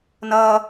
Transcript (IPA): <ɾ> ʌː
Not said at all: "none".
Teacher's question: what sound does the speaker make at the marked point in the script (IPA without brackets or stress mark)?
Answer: n